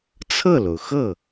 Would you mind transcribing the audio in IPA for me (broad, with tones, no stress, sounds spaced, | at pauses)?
t͡sʰ ɤ˥˩ l o˩ ʊ̯ x ɤ˥˩